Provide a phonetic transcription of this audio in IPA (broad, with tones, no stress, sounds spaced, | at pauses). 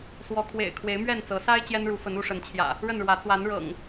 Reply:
s w ɔ˨˦ kʰ w ḛ˨˩ ɪ̯ kʰ w e˨˦ ɪ̯ m ɥ ɛ˥˨ n t͡s ɤ˨˦ s a˦ ɪ̯ t͡ɕ j ɛ˦ n ɻ u˨˦ f ə˨˦ n u˨˦ ʂ ə˨˦ n t͡ɕʰ j ä̰˨˩ | ɻ ə˥˨ n ɻ w ä˨˦ t͡s w a˨˦ n ɻ ɤ̰˨˩ ŋ